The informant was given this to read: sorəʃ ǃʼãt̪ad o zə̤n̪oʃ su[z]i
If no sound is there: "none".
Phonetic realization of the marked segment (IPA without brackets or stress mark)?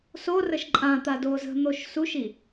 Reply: ʃ